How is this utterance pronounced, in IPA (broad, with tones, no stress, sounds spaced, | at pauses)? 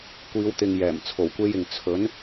kʷ iː˨˧ w t̪ ɪ˨ ŋ j ɛː˨˩ m t͡sʰ o˨˩ w kʷ e˧ j ɪ˨ ŋ t͡sʰ ɵ˨˥ n